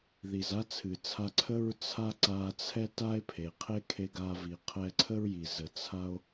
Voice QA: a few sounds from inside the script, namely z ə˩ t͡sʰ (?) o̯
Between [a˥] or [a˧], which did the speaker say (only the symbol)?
a˧